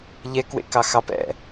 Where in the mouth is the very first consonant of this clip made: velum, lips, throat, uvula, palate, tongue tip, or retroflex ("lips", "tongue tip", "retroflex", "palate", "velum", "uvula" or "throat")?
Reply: palate